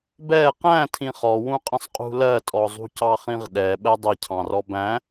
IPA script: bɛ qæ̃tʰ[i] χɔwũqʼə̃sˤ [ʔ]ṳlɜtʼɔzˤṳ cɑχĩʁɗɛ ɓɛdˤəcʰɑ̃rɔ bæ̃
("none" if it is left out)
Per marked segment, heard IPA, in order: ĩ, qʼ

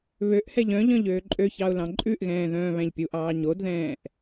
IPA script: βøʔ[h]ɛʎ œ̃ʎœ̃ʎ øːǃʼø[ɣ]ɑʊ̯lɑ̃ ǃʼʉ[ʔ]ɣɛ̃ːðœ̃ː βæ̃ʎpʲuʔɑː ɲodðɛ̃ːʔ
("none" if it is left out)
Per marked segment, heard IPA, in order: h, ç, ʔ

